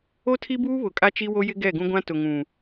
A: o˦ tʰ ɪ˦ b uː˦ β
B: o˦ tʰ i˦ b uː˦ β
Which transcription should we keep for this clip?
B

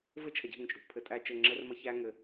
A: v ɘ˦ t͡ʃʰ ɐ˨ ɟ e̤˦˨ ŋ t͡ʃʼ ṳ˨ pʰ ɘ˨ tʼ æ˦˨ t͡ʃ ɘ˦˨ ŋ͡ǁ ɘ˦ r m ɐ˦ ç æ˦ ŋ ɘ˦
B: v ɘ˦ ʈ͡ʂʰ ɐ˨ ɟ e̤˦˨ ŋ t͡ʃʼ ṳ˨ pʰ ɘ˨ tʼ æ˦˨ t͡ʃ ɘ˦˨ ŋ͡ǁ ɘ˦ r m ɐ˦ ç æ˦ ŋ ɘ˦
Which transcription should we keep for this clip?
A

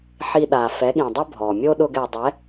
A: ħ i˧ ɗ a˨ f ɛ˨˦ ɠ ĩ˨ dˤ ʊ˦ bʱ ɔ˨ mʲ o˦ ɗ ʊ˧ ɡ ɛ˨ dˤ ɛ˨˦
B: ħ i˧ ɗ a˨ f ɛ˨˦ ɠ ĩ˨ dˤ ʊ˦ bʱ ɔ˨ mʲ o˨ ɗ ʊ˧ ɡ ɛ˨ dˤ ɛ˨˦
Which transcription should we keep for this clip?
A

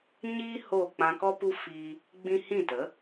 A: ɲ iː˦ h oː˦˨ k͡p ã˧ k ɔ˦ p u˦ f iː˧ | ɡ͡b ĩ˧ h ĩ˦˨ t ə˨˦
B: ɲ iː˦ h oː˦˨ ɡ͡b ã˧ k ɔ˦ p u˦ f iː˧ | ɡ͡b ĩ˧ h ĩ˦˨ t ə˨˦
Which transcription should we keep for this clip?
A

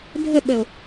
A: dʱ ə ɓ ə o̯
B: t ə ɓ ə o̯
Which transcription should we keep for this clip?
A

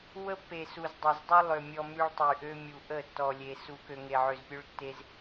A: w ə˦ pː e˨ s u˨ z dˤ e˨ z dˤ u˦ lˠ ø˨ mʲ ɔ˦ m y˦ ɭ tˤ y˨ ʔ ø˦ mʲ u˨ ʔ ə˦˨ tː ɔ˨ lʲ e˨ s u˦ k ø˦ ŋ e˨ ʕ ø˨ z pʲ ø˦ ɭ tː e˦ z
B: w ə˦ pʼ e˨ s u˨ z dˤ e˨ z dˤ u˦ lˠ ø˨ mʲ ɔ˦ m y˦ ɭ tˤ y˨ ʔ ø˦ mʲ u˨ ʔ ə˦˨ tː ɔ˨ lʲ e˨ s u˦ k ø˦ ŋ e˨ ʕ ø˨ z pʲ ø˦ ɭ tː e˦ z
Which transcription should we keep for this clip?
A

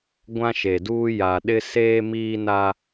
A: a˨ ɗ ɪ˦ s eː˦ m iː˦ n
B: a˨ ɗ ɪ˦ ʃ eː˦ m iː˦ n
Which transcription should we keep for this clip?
A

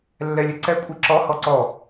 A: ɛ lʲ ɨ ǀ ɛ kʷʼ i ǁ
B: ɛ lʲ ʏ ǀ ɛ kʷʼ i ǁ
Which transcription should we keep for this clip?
A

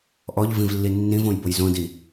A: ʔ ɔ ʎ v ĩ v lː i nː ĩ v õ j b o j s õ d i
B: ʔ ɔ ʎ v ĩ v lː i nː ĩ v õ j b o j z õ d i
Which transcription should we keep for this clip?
B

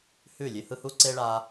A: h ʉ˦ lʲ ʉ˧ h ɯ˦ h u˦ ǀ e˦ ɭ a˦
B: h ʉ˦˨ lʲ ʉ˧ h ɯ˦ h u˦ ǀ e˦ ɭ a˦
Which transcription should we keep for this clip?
B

